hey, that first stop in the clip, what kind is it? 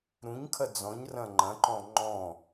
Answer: aspirated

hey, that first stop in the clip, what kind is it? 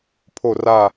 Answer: aspirated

